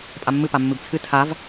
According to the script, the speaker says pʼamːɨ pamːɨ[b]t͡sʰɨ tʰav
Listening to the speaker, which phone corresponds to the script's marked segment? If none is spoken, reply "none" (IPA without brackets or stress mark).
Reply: b